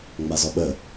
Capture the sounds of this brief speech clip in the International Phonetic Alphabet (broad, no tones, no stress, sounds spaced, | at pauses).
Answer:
ŋ͡m a z ɔ ɓ ə